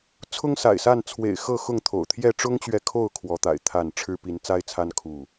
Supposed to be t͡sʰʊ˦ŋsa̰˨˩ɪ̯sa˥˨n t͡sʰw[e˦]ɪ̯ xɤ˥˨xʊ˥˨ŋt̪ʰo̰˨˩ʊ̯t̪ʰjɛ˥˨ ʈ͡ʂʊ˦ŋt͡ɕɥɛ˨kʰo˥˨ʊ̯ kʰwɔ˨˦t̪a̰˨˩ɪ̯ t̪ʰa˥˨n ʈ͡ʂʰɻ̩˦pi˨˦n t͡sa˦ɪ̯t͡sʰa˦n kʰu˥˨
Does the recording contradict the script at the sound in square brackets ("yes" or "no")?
yes